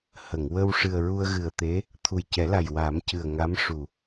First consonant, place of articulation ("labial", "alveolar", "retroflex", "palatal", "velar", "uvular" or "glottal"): glottal